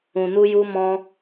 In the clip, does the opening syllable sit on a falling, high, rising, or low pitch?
low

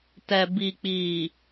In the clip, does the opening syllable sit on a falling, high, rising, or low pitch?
low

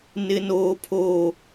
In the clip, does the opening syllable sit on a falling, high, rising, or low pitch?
high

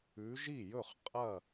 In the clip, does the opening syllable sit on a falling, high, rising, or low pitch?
rising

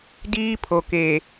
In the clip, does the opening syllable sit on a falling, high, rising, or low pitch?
high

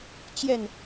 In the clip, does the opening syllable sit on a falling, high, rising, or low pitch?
falling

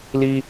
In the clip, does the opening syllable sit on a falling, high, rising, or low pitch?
high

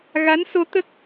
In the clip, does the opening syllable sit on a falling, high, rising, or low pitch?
rising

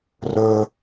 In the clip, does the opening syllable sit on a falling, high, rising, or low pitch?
high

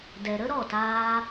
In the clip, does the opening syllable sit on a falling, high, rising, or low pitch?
low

